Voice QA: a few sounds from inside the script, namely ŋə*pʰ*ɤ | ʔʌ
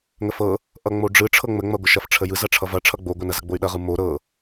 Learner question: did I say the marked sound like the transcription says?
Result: no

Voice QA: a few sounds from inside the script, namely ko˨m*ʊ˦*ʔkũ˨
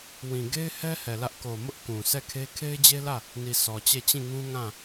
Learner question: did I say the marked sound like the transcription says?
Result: yes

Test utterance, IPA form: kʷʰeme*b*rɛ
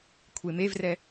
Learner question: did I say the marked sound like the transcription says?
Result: no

